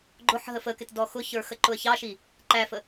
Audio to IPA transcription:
ɡ͡ǃ ʊ ħ ɦ ə f ə k ɪ t d ɔ x ʊ ç ə˞ x ə ǃ ʊ ə̯ ç ɑ ʃ i | ǃ æ f ə

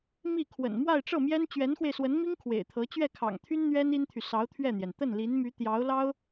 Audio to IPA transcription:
m i˥˩ kʰ w ə̰˨˩ n m w a˥˧ ɪ̯ ʈ͡ʂ ɤ˥˩ m j ɛ˥ n t͡ɕ ɥ ɛ˧˥ n x w e˧ ɪ̯ s w ə˧˥ n m i˥ ŋ kʰ w ḛ˨˩ ɪ̯ t̪ʰ ɤ˧˥ t͡ɕ ɥ ɛ˥˩ kʰ ɑ̰˨˩ ŋ t̪ʰ y˥ n n̪ ɥ ɛ˥ n i˥ n t̪ʰ y˨ s ɑ˧˥ ʊ̯ t̪ʰ ɥ ɛ˥˩ n̪ j ɛ˩ n t̪ ə˥˩ n l i˧˥ n m y˧˥ t̪ j ɑ˧˥ ʊ̯ l ɑ˥ ʊ̯

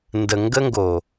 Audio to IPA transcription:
n d ə˨ ŋ ɡ ə˦ ŋ ɡ o˨

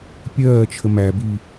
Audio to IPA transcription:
pʲ ɜː t͡ʃʰ ə m æ b i

